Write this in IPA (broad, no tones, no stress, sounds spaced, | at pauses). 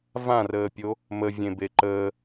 v ã r əː pʲ o | m ə vʲ ẽ b e ǃ əː